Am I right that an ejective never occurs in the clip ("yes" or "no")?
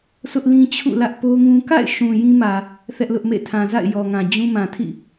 yes